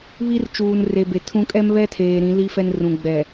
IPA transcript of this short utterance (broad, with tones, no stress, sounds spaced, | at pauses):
β i˦ r t͡ʃ uː˨ n r e˨ b e˨ tʰ ũ˦ kʼ ɛ˦ m β ɛ˦ tʰ eː˨ ɾ ĩ˨˦ l i˦ f ɛ˦ n r ũ˨ ɡ͡b ɛ˨